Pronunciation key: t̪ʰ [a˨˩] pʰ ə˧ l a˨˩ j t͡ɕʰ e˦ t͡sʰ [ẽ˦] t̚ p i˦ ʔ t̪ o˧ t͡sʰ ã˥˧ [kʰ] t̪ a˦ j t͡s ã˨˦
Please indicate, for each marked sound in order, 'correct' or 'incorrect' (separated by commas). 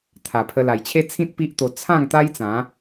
correct, incorrect, incorrect